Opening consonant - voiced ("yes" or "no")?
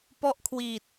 no